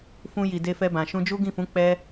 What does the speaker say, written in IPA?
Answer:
fũ˧ji˨ de˧fɛ˧bã˨ ʃũ˧d͡ʒu˦ ɡĩ˦˨fũ˨˦ k͡pɛ˦

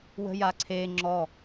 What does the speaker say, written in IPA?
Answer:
wə̤jaǀʰe ŋ͡ǁɔ

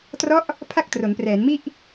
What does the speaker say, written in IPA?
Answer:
trɔ˦˥ʔ | pʰa˥˩k̚tro˩˦nprɛː˩˦nmi˥˩ʔ

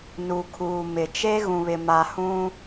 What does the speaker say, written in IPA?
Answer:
nu˨kʰuː˨mɪ˨ t͡ʃe˦ ɣũ˨βɪ˨ma˨hũ˦

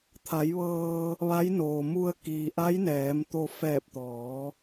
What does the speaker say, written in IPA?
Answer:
t̪ʰa˩˧jʋɤː˧ | ʋa˧˥jnoː˩ mu˧ə̯ kiː˩ʔa˧˥jnɛː˩˧mt̪o˧ fɛː˧˩p̚t̪ɔː˩˧

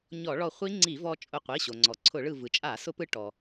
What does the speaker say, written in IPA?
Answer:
ɲɔ˧˩˧ɭɔ˧˩χʷi˦˥ ŋ͡ǀi˧˩˧vɔ˧ t͡ʃʼʊ˧˩qʷi˩˧˩ɕo˩ŋ͡ǀɔ˩ ǀʰʊ˧˩˧ɭɯ˧˩ vɯ˩t͡ʃʼa˧˩˧ sʊ˦˥pɯ˦˥ ʈɔ˩

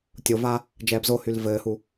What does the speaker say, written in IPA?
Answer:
tʲova | d͡ʒɛːbzohyl vɘːhu

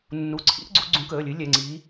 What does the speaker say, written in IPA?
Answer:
nːu˩˧˩ǀʰḭ˨˥ʔ ɡ͡ǀu˨˥ɡ͡ǀũ˨˥kəː˩˧˩lʲɨ˨˥ lʲɛ˩˧˩ŋ͡ǀiː˨˥

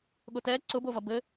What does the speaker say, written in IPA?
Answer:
ɠʊtɛ ǀʊbovɐ bɘ

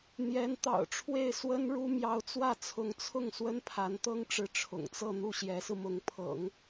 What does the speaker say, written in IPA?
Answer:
n̪jɛ˧˥nt̪ɑ̰˨˩ʊ̯ʈ͡ʂʰwe˥˩ɪ̯ swə˥nɻu˥ mjɑ˧˥ʊ̯t͡swä˥˩t͡sʰʊ˧˥ŋt͡sʰʊ˥˩ŋ swə˥npʰa˧˥nt̪ɤ˥ŋʈ͡ʂɻ̩˧˥ ʈ͡ʂʰʊ̰˨˩ŋt͡sɤ˥˧ n̪u˥˩ɕjɛ˧˥sɹ̩˧ mʊ˧˥ŋpʰɤ̰˨˩˦ŋ

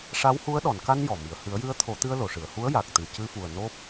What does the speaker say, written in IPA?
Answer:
ʂa˧˥whu˧˥ə̯ɗɔ˨˩˨n ka˧n jɔ˨˩mi˨˩ə̯ hɨ˨˩˦ə̯jɨ˧˥ə̯t̪ʰo˨˩˦t̪ɨ˧ə̯ lo˨˩˨ʂɨ˨˩˨ə̯hu˧˥ə̯ ja˨˩k̚t̪ɨ˨˩ cɨ˧fu˨˩ə̯ no˦˥p̚

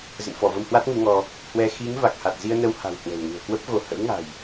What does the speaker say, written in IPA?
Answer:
zə̰˧˨nfɔ˧˩ və˧mhwa˦˥t̚ŋu˨˦ŋɔ˧ | hwɛ˧ xi˨˦ŋ va˨˩k̚ha˨˩t̚ zi˧ə̯nə˧w ha̤˨˩w hwə̤˨˩wŋṳ˨˩ə̯kwə˦˥p̚ɣo˨˦ hə̰˧˥wŋa̤˨˩j

